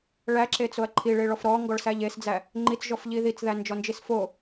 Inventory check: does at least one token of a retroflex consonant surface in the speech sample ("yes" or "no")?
yes